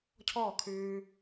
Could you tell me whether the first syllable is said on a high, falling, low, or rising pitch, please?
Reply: falling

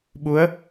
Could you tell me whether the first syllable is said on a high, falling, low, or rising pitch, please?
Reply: rising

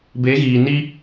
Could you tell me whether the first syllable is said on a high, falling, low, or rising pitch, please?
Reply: rising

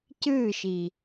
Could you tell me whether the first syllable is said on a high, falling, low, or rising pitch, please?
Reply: falling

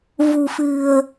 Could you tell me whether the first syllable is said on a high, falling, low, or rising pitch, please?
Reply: low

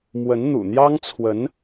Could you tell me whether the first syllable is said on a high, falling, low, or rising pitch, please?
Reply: rising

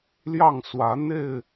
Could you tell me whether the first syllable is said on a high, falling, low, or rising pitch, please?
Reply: falling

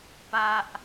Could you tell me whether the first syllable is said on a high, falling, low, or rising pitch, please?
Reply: high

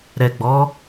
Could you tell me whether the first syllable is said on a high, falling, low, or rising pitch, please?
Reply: low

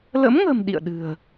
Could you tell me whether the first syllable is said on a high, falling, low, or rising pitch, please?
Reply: rising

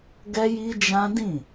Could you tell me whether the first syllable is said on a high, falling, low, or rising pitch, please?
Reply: high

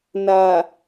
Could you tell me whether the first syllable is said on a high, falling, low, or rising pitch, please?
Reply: low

